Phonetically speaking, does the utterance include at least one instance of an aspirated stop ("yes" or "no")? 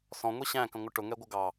no